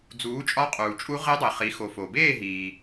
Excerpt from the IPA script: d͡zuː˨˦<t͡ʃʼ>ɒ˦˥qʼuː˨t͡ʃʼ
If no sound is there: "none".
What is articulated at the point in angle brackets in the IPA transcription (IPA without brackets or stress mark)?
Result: t͡ʃʼ